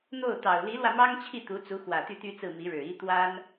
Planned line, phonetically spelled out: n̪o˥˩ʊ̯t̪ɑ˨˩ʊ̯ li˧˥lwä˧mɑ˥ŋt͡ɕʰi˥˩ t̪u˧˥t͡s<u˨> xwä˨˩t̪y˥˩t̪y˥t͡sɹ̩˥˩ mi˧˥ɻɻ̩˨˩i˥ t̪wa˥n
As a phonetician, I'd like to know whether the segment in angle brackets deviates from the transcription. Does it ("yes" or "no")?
yes